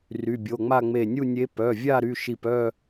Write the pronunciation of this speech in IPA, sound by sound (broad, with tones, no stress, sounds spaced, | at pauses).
r y˩˧˩ bʲ o˩˧˩ ŋ͡m a˥˧ ŋ͡m e˧˩ nʲ u˥˧ nʲ e˧˥ p œ˩˧˩ vʲ a˥˧ ɾ y˩˧˩ ʃ i˧˩ p œ˥˧